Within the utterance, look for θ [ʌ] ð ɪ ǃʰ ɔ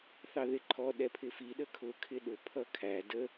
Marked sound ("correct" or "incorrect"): incorrect